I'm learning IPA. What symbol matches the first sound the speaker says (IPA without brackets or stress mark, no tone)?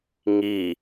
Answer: ŋ